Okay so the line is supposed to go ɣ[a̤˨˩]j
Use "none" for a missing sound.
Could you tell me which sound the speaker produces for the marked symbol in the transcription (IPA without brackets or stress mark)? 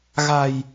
a̤˨˩